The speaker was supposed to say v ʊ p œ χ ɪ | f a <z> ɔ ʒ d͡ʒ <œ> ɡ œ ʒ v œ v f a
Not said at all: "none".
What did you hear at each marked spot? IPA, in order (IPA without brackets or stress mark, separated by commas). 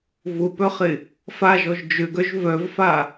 ʒ, ø